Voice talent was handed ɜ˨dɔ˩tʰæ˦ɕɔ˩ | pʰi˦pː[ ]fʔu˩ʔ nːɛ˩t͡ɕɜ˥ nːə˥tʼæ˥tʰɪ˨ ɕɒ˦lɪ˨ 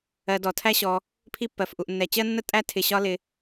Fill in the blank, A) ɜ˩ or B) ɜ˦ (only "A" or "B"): A